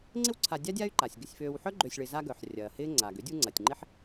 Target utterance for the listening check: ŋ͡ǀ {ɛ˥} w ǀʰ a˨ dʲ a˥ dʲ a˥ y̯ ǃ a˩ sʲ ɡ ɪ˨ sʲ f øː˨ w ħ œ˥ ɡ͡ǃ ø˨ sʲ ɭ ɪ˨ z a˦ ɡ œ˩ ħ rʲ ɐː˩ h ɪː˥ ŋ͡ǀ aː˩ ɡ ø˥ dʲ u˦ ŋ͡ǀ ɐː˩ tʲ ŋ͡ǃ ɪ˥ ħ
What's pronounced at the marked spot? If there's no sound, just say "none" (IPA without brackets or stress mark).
ɪ˥